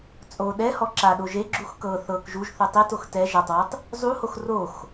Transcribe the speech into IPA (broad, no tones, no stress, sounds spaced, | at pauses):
t͡sʼ o ɗ ɛ h ɔ ǁ a ɗ o ʒ e ɡ͡ǁ u x k ɤ θ ɤ k ʒ u ʒ θ ɯ tˤ i t o x t ɛ ʒ a tˤ w ɯ tˤ | zˤ u h o x r o x